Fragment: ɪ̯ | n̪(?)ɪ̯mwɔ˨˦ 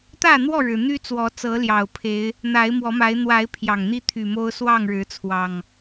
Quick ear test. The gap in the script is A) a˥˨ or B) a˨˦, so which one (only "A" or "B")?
B